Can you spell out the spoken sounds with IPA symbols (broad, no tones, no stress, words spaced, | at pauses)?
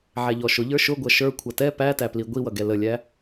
ʕæʎɔʃʊ ʎə˞ʃʊɡʷʌ ʃə˞ kʷʰʌtɛ pætæpli ɡʷiwʌɡɛ ləlʲæ